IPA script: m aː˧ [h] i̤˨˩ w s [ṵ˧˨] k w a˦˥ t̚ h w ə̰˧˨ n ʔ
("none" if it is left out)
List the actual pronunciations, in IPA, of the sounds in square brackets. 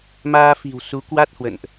f, u˨˦

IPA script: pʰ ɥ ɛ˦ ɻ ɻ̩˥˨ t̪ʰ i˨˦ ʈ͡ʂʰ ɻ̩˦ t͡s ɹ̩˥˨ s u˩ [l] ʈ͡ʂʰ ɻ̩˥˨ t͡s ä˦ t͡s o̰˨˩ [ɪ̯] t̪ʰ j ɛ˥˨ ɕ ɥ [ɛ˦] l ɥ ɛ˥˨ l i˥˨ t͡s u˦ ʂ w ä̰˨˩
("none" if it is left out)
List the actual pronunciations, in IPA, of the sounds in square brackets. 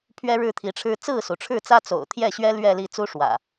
none, ʊ̯, ɛ˦

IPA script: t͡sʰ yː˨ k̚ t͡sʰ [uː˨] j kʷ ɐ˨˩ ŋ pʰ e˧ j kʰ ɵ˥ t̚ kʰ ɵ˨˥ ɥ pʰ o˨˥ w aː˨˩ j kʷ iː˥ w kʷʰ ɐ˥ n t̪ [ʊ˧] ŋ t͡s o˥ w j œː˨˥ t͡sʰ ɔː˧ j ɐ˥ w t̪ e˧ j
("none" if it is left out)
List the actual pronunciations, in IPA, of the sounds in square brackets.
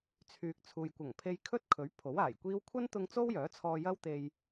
uː˨, ʊ˧

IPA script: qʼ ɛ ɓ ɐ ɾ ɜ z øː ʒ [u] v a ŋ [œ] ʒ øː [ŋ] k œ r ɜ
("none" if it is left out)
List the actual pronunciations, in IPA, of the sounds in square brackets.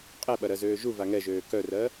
u, ɛ, none

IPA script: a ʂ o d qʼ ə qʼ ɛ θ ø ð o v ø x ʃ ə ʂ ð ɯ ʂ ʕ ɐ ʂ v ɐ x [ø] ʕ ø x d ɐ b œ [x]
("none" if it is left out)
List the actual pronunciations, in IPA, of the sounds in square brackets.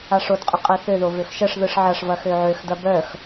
ø, x

